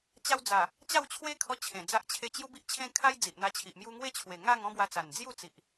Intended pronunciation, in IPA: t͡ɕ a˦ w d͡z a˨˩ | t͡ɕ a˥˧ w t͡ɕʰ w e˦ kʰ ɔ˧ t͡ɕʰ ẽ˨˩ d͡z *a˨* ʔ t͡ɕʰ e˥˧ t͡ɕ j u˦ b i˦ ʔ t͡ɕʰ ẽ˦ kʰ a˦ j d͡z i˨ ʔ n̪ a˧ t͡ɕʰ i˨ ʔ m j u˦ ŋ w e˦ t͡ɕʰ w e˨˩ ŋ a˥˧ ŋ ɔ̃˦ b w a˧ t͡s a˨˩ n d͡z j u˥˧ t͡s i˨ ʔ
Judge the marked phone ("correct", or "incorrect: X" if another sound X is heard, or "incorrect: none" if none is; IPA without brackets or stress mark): incorrect: a˦